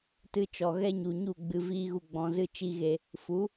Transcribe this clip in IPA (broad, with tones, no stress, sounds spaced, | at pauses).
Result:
t ɨ˧ t͡ʃ ɔ˨ ɣ ɛ˦ ɲ u˨ ɲ u˦˨ ɡ͡b ɨ˧ v iː˦ ɣ u˧ ɡ͡b ɔ̃˧ z ɨ˦ t͡ʃ i˦ ɣ e˧ | f u˨˦